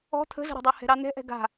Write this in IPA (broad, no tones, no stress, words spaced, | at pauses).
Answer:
ɔ̤ t̪ʰə̤zə̤ɾɛ̤dˤa hɛ̤ɾɑn̪ɛ̤ʔɛ̤ ɡa̤